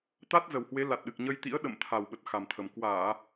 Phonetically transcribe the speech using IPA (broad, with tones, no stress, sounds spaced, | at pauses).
t̪ a˦˥ t̚ z ə˨˩ w h w e˨˦ l a˨˩ t̚ ɗ ɨ˨˩ k̚ ɲ ə˧ j t̪ ḭ˧˥ ə̯ ɗ ə̰˧˨ m t̪ʰ a˨˩ w ɓ ə˨˩ t̚ x a˨˩ m t̪ʰ ə˨˩ m k w aː˧˩˨